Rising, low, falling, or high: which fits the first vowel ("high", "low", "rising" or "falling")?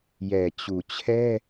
low